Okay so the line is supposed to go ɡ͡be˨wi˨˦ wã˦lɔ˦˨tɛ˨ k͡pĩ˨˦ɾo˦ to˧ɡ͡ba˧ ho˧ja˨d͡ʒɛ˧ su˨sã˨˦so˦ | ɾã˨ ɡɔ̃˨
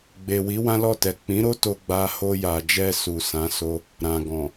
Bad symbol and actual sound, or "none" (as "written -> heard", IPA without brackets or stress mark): none